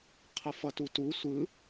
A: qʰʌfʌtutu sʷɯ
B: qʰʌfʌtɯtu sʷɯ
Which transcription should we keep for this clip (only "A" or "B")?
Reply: A